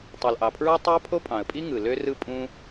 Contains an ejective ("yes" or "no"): yes